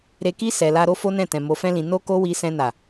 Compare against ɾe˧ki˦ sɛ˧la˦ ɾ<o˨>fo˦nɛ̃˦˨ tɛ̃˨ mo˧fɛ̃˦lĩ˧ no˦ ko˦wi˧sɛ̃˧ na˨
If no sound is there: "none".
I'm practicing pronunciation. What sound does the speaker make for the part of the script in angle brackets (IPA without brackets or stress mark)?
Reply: o˦